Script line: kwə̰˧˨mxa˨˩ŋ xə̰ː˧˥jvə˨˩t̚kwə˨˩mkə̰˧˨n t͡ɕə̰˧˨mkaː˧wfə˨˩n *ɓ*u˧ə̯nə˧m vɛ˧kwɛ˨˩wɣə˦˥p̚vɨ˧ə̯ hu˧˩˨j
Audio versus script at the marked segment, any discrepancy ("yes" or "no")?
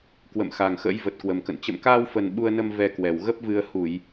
no